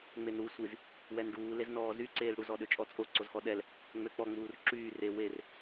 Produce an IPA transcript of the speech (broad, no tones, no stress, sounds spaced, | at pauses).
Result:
ŋ͡m e n ɾ u sʷ i z | w ɛ n ɖ uː l e z n ɔː z y ǀ eː l ɽ u z ɔ ɗ ø t͡ʃʼ ɔ t͡sʼ o ǀ o z x ɔ ɗ ɛ l | ŋ͡m ø k͡p ɔ ŋ͡m uː r ǁ yː r e w e r